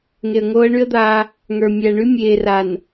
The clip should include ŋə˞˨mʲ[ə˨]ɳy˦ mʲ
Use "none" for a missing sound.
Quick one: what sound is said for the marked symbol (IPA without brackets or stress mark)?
æ˨